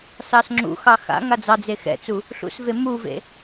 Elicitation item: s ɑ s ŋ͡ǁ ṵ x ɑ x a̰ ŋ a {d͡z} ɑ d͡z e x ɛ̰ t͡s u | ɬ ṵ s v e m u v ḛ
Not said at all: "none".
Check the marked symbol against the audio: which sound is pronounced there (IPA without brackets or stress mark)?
d͡z